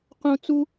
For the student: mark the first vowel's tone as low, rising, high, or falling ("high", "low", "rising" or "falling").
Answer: high